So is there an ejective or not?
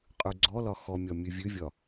yes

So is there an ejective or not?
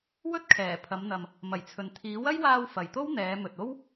no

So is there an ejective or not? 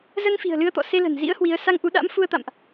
no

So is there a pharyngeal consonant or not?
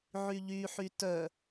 yes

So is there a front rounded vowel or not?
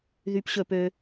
yes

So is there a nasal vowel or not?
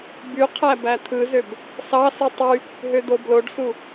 no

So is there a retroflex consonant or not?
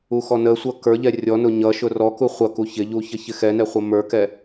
no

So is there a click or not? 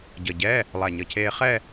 no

